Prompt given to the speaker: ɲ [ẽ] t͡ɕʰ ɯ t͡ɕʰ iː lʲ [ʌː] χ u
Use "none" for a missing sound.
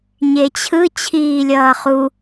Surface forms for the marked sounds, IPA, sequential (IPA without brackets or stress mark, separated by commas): e, ʌː